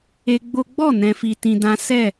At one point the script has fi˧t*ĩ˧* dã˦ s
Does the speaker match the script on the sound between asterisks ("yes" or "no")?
yes